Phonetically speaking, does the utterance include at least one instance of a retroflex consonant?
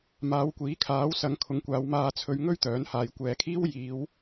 no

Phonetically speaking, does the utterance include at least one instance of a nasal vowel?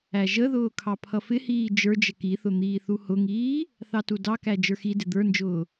no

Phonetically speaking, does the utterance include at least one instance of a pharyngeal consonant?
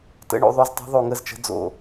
no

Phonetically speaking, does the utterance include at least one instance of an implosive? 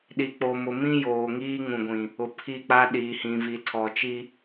yes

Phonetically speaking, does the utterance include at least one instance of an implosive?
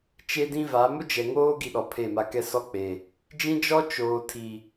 yes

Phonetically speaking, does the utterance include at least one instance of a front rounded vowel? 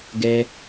no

